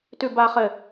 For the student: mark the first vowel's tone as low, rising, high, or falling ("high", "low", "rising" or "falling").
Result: low